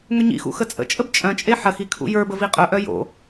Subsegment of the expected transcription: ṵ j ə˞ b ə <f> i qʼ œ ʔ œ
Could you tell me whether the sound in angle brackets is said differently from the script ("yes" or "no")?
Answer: yes